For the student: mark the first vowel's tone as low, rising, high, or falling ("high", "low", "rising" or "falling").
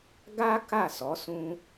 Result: high